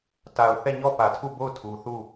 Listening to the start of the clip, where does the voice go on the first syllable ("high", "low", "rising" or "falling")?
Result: low